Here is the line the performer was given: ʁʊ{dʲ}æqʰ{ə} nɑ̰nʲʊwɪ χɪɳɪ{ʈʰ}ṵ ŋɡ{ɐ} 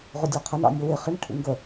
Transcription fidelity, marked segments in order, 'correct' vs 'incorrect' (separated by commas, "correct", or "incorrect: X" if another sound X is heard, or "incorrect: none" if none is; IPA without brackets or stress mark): correct, correct, correct, incorrect: ə